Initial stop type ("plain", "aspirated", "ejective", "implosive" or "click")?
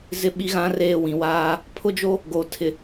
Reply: implosive